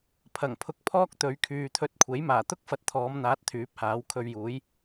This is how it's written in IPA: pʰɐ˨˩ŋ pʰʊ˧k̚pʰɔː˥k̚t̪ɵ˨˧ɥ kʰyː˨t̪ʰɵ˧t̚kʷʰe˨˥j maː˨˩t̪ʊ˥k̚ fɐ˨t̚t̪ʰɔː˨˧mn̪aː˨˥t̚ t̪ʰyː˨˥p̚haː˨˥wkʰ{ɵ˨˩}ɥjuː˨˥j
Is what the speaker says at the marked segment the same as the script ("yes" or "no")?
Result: no